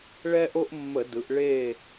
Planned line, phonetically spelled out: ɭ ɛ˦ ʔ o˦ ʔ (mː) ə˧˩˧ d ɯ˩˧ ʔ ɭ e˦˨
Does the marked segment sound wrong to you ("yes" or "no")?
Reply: no